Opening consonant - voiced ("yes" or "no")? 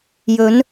yes